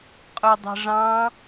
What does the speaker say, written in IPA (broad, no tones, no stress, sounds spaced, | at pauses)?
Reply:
qʼ o dˤ e̤ ʐ ɑ̃